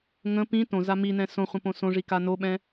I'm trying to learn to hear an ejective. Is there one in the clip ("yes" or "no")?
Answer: no